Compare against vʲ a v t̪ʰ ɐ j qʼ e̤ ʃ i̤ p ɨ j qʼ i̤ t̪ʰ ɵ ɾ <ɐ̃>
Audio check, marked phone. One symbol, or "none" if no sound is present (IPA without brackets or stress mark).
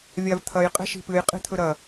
ɐ